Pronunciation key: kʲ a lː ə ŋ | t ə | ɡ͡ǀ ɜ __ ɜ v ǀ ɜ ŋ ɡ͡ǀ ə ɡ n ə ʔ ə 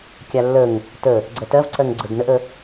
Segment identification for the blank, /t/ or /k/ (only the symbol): t